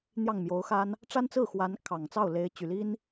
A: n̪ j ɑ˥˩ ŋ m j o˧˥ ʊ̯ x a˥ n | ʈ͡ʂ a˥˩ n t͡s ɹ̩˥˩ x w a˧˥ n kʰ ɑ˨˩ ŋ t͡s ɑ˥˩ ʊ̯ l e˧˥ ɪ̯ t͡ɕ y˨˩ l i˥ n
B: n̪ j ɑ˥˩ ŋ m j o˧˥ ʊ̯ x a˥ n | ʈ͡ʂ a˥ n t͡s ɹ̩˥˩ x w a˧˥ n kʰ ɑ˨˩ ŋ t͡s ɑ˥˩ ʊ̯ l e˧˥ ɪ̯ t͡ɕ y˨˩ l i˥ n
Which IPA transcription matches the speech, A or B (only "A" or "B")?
B